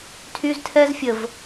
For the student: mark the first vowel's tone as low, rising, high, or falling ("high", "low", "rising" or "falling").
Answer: high